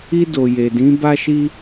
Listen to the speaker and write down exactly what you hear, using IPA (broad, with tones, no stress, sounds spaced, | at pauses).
i˧ d o˨ j e˨ d ĩ˨˦ b a˦ ʃ i˦